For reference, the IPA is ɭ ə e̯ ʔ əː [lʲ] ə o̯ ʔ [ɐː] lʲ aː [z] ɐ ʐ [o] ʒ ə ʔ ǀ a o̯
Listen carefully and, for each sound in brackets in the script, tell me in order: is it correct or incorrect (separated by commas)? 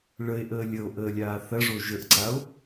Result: correct, incorrect, incorrect, correct